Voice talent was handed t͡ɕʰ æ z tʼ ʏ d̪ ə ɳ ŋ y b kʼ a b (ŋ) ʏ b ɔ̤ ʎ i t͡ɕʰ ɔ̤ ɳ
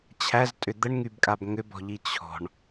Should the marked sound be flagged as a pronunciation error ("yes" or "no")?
no